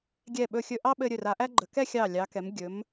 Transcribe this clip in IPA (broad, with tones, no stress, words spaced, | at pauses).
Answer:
ɡʲɛ˧˩ɓɵ˧˩xʲɵ˧ ʔɑ˥ɓɘ˧ ɾʲɵ˧˩ra˩˧ʔæ˥ɡ͡ǃə˩˧ kɛ˥˧xʲɑ˧˩ lʲɑ˩˧kɛ˩˧m ɡʲɵ˩˧m